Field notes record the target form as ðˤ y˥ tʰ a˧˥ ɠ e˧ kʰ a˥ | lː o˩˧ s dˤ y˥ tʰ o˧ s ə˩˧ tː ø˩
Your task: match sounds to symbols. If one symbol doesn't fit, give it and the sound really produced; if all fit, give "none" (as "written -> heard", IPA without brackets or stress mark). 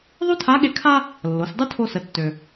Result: none